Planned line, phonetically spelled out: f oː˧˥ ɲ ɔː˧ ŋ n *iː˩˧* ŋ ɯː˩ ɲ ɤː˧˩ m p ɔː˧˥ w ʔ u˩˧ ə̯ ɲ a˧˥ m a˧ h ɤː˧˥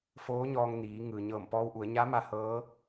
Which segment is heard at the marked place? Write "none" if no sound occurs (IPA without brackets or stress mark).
iː˩˧